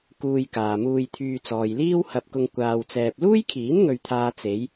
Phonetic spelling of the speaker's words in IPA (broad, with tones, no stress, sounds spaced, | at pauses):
k uː˧ j k aː˨ m uː˧ j t̪ʰ yː˧ t͡s ɔː˨ j l iː˥ w h ɐ˧ p̚ k ʊ˧ ŋ kʷ aː˧ w t͡s ɛː˧ p̚ l uː˥ j kʰ iː˨˥ n ŋ ɵ˧ ɥ t̪ʰ aː˧ t͡s e˨˧ j